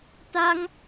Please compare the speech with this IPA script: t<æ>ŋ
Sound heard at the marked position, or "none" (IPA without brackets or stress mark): a